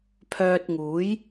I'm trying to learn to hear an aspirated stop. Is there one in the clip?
yes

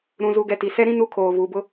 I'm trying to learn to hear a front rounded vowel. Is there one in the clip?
no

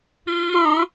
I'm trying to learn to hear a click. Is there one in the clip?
no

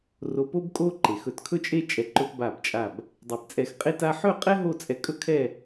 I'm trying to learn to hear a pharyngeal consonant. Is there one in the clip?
yes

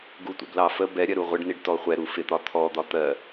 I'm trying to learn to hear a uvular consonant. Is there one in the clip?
yes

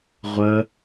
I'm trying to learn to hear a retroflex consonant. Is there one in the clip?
no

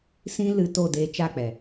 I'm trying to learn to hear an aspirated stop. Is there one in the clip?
no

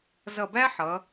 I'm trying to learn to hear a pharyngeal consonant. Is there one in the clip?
yes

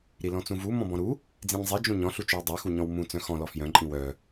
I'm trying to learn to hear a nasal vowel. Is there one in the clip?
yes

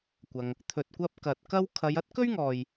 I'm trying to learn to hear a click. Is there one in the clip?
no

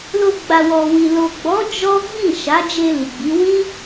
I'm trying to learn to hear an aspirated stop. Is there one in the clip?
no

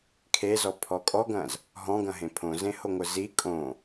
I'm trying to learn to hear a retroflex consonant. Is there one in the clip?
no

